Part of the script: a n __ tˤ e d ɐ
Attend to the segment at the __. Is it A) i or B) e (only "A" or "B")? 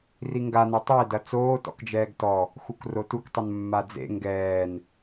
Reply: B